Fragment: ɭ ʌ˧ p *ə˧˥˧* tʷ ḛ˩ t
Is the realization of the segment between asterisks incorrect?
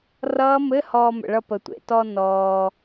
yes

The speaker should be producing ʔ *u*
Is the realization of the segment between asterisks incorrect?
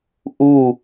no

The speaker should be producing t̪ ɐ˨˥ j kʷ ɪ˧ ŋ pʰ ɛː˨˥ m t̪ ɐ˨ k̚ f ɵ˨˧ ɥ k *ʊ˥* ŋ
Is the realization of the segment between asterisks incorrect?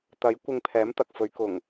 yes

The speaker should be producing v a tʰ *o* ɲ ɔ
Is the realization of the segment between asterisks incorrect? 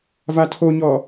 no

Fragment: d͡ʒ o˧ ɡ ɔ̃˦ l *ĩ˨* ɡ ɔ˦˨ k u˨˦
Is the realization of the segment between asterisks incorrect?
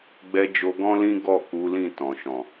yes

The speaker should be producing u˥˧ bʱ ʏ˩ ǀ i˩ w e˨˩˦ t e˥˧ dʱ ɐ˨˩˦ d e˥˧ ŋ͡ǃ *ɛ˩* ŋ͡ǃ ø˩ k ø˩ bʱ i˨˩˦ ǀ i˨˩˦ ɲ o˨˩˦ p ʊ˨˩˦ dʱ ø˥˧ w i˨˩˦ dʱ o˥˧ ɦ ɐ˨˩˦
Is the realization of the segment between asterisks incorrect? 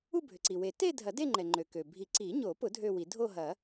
no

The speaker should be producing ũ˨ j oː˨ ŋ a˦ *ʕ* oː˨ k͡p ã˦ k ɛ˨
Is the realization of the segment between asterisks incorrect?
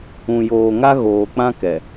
yes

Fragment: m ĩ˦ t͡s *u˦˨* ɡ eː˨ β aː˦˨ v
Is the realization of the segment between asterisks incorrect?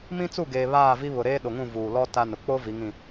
no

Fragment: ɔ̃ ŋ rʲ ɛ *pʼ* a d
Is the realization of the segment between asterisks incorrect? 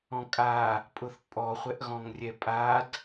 no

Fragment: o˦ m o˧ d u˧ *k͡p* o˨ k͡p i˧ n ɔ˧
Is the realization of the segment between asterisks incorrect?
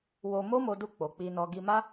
no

